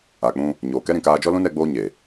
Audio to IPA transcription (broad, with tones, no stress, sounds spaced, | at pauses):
a˨ k͡p ũ˧ | ɲ oː˨ k ɛ˦ ɾ ĩ˨ k aː˧ d͡ʒ ɔ˦ l ũ˦ n ɛ˧ ɡ͡b oː˧ ɲ eː˨